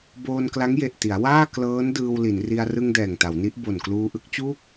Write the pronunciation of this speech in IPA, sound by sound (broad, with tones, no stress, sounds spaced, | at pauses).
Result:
b oː˧ n k l a˦˥ ŋ j e˨˩ ʔ t i˩˦ a̯ w aː˥˩ k l ɤː˦˥ n d ɯː˧ w l i˩˦ n r i˧ a̯ r ɯ˧ ŋ d ɛː˨˩ ŋ t a˩˦ w n i˦˥ ʔ b o˨˩ n k l uː˧ ʔ ɯ˥˩ k̚ t͡ɕ uː˥˩ k̚